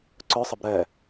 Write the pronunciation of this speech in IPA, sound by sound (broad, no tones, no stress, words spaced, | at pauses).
ǀœsˤəb ɾɛ